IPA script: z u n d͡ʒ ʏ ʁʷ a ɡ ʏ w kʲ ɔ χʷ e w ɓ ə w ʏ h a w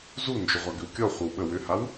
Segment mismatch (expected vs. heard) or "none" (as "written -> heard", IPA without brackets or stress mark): none